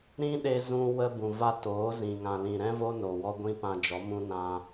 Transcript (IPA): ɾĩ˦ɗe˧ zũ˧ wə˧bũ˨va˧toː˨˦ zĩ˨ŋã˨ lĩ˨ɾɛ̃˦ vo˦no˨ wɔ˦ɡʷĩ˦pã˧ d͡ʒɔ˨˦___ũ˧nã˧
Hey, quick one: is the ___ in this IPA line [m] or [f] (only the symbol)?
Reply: m